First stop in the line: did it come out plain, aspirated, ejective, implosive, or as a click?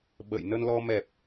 implosive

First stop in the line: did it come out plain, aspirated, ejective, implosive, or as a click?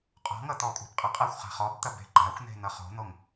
ejective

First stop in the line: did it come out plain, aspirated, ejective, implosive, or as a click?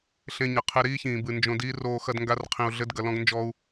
aspirated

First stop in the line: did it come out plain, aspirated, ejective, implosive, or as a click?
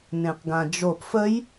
plain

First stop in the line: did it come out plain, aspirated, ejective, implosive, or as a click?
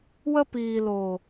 plain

